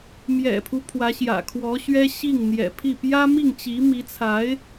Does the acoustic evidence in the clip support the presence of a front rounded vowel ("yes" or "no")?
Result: no